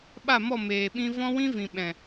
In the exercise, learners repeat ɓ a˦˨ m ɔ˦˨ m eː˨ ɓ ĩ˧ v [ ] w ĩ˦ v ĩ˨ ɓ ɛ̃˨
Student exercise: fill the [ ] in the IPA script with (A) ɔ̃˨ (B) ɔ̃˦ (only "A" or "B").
B